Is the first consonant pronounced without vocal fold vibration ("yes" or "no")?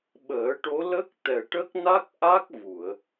no